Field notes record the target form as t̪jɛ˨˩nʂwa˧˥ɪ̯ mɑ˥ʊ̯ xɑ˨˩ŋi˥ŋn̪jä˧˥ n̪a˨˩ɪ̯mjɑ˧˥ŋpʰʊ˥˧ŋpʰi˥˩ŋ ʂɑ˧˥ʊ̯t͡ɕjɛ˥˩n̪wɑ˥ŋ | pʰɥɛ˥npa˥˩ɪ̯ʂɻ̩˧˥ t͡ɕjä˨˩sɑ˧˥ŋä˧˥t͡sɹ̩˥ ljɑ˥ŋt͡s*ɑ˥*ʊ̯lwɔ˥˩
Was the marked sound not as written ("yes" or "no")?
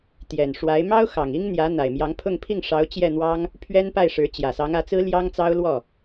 no